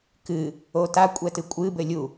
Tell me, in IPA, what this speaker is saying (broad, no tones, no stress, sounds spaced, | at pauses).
k ɨ | o t a kʷʼ ɛ t ɨ kʷʼ ɨ b ɘ lʲ u